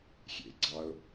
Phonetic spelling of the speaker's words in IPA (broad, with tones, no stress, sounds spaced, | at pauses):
xʲ ḛ˩ ɡ͡ǀ ɑ˩ ʊ̯